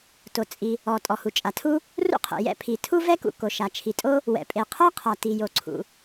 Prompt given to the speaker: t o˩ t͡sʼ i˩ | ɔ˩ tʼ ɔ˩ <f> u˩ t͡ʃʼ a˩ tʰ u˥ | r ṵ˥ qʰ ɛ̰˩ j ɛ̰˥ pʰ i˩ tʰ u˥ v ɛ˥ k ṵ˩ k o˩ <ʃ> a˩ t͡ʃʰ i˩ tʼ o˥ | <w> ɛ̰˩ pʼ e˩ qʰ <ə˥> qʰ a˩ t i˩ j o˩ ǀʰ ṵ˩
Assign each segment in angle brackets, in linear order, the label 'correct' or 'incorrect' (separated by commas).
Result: incorrect, correct, correct, incorrect